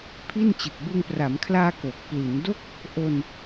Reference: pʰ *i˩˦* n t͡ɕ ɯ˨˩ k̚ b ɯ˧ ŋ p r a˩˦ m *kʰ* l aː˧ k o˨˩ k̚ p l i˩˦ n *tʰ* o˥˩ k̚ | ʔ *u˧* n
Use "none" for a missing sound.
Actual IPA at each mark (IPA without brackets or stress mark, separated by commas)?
i˥˩, kʰ, d, o˧